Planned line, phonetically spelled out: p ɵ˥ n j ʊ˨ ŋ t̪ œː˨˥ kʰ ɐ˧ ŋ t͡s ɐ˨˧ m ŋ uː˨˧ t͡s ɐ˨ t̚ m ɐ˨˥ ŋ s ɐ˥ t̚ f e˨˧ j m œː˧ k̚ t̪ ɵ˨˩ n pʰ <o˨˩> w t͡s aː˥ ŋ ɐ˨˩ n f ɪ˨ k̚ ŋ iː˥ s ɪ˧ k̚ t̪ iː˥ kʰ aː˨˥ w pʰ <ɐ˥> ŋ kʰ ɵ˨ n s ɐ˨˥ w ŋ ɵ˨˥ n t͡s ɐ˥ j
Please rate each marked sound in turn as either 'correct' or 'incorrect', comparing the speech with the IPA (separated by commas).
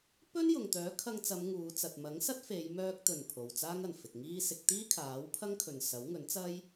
incorrect, correct